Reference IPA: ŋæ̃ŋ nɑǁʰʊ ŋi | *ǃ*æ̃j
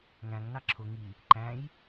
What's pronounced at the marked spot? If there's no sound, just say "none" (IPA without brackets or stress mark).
ǃ